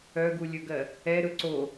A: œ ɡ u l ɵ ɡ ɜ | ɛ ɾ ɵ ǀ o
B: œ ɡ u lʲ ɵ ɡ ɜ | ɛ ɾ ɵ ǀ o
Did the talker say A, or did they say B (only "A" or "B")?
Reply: B